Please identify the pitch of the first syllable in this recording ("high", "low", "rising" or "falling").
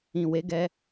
low